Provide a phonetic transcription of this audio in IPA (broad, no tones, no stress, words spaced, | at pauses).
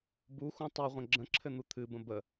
buxũ tˤiʁʷə̃ ɡ͡ǁə̃ǁʰɘn̪u t̪ʰɨbə̃ bə